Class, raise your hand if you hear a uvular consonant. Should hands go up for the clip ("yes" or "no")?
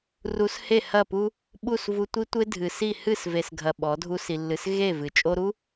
no